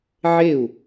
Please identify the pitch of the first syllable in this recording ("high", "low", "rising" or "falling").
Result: falling